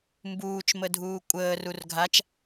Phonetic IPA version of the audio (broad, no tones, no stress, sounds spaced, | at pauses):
m b uː t͡ʃ m ə dʱ uː kʷʼ əː r u r ɡʱ a t͡ʃ